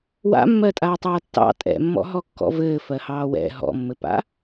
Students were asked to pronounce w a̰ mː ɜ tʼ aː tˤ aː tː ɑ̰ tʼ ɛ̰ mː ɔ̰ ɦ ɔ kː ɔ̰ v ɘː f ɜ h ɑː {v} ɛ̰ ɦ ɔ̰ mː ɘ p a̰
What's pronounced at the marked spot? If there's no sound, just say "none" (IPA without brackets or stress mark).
w